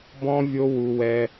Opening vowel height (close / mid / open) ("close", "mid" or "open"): mid